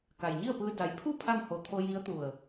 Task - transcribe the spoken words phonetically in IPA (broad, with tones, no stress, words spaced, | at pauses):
ka˩jɲi˥˨ə̯pɯː˧ da˩˧jpʰu˥˨ pʰa˥˨mho˧˩t̪ʰo˧ji˧˥ə̯ t̪u˧˩ə̯